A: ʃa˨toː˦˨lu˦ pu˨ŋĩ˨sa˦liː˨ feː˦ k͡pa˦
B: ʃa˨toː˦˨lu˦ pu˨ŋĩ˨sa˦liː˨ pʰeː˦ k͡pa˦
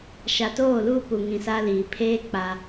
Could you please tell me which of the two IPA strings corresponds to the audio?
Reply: B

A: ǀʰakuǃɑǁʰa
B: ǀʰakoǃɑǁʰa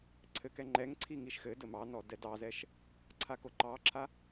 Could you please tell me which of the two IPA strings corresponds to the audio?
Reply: B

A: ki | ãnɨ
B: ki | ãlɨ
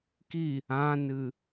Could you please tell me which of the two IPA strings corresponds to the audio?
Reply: A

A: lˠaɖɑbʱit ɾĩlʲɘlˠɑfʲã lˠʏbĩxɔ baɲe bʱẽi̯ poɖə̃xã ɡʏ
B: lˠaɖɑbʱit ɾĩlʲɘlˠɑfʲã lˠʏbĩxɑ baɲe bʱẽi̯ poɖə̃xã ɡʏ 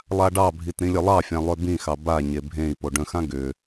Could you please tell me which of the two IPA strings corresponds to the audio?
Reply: B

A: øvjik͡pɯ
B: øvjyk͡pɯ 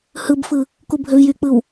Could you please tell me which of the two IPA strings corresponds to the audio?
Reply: B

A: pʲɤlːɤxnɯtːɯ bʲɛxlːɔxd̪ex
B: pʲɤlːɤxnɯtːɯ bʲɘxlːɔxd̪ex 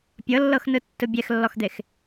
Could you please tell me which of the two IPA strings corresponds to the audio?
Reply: A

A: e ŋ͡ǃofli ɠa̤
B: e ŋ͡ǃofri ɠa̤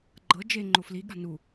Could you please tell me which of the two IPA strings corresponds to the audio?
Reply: A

